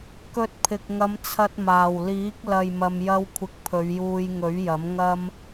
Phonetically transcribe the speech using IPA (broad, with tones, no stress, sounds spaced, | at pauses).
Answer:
k ɵ˧ t̚ pʰ ɪ˨ k̚ ŋ ɐ˨˧ m t͡sʰ ɐ˧ t̚ m aː˨˩ w l iː˨˥ k̚ l ɐ˨ j m ɐ˨ m j ɐ˧ w kʷʰ ɪ˨ k̚ pʰ ɵ˨˧ ɥ j uː˧ j ŋ ɵ˨˥ ɥ j ɐ˨˥ m ŋ ɐ˥ m